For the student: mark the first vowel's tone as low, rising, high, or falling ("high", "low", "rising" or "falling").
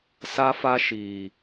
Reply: high